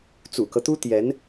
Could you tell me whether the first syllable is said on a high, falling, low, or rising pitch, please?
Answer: low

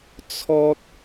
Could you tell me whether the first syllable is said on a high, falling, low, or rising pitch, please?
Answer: high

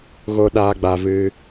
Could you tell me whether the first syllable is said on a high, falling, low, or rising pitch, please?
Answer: high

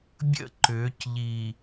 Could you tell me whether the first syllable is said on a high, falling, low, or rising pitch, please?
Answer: falling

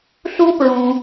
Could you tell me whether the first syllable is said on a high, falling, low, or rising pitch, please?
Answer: high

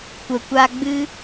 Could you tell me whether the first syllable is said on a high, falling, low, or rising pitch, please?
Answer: low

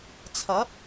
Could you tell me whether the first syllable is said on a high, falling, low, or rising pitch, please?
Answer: rising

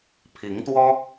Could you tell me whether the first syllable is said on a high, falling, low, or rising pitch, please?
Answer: rising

